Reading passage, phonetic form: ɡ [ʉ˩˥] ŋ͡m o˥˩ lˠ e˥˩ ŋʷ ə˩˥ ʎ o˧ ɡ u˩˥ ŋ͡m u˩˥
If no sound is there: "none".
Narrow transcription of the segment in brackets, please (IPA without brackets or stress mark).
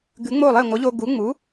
ʉ˩˥